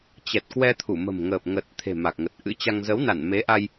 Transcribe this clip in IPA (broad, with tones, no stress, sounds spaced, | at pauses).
t͡ɕ ɛ˨˩ t̚ k w ɛ˧ t̪ʰ u˧˩ m ə̤˨˩ m ŋ əː˨˩ p̚ ŋ ə˨˩ t̚ t̪ʰ e̤˨˩ m a˨˩ k̚ ŋ ə˨˩ t̚ ʔ ɨ̰˧˥ t͡ɕ a˧ ŋ z ə˨˦ w n a˧˩ n m e˨˦ ʔ a˧ j